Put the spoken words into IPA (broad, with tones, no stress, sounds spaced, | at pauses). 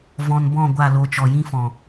v ɔ̃˧ n b ɔ̃˦˨ ɡʷ a˦˨ l o˧ t͡ʃ ɔ˨ j ĩ˧ f ɔ̃˨